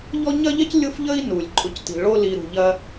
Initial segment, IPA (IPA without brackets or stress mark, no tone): ʎ